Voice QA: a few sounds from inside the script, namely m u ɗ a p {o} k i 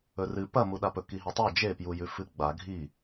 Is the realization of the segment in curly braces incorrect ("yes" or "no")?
yes